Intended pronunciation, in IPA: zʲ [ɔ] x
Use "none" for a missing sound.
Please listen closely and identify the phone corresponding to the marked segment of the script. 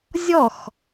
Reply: ɔ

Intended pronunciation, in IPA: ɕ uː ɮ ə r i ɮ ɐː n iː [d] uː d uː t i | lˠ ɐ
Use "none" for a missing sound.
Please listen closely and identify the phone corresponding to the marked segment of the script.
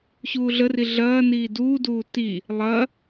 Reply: d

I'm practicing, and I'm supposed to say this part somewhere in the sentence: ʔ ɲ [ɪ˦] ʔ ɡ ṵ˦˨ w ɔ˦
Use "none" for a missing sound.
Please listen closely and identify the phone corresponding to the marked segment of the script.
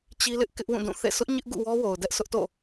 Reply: ɪ˦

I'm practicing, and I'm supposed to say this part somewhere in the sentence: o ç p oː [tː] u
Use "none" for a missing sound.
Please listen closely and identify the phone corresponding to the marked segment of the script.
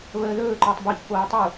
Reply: tˤ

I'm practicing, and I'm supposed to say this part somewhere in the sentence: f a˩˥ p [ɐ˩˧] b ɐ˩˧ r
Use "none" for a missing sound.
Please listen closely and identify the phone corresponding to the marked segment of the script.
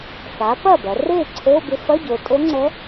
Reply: ɐ˥˩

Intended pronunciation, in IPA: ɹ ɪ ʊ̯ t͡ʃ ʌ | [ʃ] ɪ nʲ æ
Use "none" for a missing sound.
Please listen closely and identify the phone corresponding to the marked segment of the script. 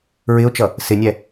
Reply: s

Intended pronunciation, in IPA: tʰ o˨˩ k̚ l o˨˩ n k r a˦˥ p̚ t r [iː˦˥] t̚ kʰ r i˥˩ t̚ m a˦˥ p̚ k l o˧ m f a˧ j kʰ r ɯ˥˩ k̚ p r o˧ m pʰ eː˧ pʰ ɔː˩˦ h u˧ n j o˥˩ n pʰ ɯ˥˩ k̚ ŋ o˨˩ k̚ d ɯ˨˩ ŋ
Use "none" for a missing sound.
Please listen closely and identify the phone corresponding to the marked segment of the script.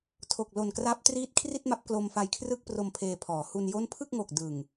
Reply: iː˦˥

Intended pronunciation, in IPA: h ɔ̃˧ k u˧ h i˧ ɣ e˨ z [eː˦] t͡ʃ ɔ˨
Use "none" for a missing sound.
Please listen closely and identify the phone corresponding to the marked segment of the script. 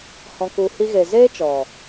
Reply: eː˦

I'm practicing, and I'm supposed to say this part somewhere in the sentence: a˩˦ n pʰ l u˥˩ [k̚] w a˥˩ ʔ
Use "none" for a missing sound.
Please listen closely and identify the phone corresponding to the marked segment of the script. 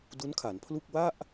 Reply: k̚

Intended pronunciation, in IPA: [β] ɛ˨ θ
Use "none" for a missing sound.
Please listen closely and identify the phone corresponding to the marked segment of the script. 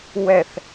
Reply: w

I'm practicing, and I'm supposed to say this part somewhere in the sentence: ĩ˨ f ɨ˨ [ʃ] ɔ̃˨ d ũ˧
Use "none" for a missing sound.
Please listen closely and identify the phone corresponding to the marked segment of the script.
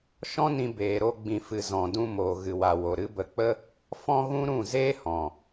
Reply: z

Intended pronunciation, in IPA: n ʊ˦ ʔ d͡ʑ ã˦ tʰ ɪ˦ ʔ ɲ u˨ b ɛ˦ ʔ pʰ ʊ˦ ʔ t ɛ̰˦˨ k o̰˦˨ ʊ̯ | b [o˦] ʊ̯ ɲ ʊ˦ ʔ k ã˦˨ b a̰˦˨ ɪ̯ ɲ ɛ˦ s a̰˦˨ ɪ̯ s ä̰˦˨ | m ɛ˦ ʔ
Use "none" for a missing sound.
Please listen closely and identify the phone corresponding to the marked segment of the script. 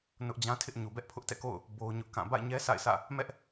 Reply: o˦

